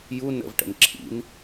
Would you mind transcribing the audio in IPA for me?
j u n ə̰ v ʈ ə̰ n ǁʰ ḭ n

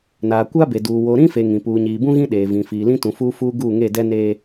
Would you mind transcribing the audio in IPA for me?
n aː˨ kʷ a˦ b e˨ d uː˨ w o˨ ɾ ĩ˦ f e˨ ŋ ĩ˨ p uː˨ ɲ iː˨ b ũ˦ ɣ ĩ˦ ɗ eː˨ v ĩ˨ f iː˨ l ĩ˦ t ũ˨ f uː˦ f uː˦ ɡ uː˦˨ ŋ e˦˨ d ɛ˦ n eː˦

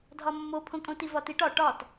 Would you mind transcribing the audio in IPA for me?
dʱ ɒ mː o pʰ õ kʼ õ t i v ɒ t i ʈ ɒ ʈ ɒ t

